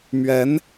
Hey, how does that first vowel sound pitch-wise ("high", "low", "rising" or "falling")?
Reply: rising